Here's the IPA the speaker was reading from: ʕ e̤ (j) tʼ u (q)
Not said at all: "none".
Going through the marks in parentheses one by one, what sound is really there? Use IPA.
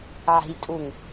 j, ŋ

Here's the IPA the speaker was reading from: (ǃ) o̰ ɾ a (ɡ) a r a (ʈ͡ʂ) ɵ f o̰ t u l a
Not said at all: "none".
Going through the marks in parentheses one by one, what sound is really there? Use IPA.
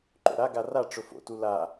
ǃ, ɡ, ʈ͡ʂ

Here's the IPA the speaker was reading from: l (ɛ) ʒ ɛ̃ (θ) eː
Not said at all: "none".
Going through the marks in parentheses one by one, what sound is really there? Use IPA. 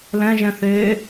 ɛ̃, θ

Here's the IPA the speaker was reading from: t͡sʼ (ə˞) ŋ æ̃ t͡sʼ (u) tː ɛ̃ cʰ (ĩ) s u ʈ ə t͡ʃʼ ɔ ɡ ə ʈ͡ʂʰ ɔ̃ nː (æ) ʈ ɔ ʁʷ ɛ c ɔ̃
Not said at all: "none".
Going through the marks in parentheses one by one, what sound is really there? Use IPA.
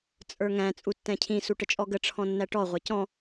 ə˞, u, ĩ, æ

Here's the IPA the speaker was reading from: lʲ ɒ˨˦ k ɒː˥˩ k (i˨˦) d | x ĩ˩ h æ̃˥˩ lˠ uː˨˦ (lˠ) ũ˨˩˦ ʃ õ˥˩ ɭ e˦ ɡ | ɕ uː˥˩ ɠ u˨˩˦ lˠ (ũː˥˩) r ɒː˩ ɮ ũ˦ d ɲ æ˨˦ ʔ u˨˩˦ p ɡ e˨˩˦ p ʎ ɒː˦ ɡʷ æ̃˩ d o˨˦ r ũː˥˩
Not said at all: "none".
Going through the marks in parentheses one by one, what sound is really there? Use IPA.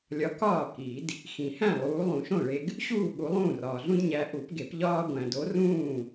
i˨˩˦, lˠ, ũː˥˩

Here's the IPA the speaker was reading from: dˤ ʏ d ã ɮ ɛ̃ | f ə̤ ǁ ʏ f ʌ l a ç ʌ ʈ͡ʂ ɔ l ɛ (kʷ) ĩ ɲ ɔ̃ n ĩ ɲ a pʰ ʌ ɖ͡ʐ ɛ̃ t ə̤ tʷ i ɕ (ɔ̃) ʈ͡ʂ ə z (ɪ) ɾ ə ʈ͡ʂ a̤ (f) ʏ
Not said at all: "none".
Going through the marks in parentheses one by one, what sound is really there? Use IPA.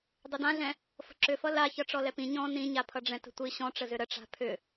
p, ɔ̃, ʏ, pʰ

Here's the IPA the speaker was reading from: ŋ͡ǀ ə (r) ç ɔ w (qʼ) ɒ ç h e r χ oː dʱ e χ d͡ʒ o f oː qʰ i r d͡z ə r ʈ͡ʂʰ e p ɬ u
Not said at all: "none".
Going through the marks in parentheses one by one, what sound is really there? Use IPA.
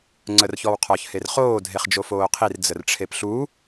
r, qʰ

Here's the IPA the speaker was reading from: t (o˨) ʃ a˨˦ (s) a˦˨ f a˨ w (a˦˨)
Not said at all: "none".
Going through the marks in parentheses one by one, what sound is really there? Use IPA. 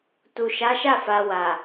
u˨, ʃ, a˨

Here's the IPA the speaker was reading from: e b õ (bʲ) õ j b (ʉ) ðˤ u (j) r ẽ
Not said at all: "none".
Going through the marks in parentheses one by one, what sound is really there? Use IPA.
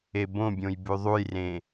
bʲ, ʉ, j

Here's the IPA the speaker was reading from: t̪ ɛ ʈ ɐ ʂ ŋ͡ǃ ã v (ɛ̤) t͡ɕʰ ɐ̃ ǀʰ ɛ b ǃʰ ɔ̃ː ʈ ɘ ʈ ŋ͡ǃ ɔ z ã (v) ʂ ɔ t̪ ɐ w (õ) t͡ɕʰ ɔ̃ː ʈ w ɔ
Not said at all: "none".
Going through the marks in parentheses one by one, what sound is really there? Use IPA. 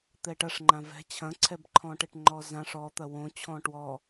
ɛ̤, none, õ

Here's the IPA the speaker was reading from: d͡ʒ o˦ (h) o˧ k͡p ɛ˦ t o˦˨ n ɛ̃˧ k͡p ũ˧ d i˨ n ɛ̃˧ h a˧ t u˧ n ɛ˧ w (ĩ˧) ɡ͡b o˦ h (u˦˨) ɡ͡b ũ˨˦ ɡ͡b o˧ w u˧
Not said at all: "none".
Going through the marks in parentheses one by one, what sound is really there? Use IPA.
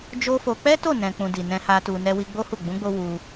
f, i˧, u˦˨

